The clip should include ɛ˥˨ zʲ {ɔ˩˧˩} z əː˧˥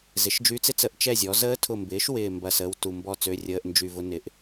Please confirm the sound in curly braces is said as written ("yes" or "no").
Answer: no